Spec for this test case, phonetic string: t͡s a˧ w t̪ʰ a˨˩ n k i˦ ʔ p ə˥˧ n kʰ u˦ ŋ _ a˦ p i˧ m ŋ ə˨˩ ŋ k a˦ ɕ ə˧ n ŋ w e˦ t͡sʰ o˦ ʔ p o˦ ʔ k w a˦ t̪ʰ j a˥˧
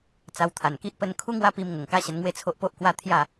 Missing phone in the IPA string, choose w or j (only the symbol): w